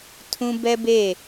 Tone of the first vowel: high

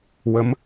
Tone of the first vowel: rising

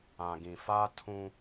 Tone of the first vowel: low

